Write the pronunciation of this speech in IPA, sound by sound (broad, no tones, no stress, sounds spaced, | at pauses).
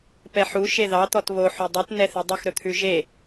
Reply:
p ɛ ħ u ʃ e ð ɑ t̪ ɔ t β o ħ u dˤ ʉ t n ɛ θ e dˤ o x ɾ ɵ t̪ʰ ʉ ʒ e